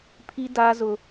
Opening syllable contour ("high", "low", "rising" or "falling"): high